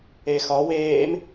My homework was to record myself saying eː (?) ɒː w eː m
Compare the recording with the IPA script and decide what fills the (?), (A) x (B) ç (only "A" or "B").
A